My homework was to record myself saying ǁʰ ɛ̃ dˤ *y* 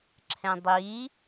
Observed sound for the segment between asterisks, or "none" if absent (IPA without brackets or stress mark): i